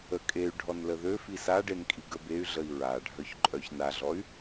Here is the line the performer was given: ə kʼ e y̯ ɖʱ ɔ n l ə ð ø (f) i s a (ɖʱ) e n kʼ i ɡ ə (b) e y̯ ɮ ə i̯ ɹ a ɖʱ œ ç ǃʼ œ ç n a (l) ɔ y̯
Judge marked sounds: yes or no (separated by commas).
yes, no, yes, no